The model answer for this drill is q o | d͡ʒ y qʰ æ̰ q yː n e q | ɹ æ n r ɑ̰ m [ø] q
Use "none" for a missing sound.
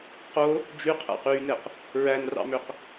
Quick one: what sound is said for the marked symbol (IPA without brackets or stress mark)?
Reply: ø